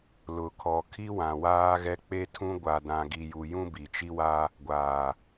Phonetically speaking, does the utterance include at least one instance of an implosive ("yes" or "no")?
no